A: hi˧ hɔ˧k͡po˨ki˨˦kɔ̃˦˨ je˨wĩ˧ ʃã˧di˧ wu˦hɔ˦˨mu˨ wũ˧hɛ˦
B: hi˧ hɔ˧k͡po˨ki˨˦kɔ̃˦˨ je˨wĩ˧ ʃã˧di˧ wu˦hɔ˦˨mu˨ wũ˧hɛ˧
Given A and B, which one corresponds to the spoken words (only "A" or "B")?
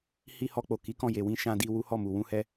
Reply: B